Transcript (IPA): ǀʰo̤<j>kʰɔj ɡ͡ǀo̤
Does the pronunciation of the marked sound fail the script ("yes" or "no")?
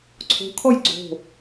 yes